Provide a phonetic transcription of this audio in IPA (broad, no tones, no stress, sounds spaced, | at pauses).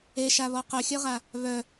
e ʃ a β ɔ q œ xʲ œ ʁ a | β œ